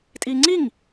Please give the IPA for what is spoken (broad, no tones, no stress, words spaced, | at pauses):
tʼiːŋ͡ǀiŋ